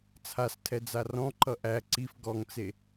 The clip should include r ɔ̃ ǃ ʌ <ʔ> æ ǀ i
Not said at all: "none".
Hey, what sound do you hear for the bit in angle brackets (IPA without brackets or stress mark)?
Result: ʔ